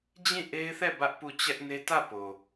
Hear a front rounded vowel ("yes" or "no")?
no